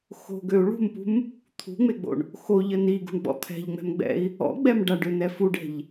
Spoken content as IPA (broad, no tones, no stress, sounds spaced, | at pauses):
x o̤ ɡ ø u̯ ɭ ṳ m p ṳ m | t̪ʰ ṳ ŋ͡m e ɡ͡b o̰ ɳ | x o ʎ ə n i ɡ ṳ ɳ ɡ͡b ɔ̰ t̪ʰ ɛ̤ ʎ ŋ͡m ɛ̤ m ɡ͡b ɛ̰ i̯ | ɔ̰ ɡ͡b ɛ m ɖ a ɖ ø n ɛ f u ɖ ɛ̤ ʎ